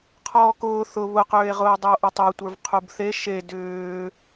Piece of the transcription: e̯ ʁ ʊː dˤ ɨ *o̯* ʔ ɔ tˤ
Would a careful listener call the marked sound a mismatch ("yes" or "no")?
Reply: no